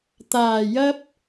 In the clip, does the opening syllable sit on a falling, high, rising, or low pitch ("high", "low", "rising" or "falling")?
low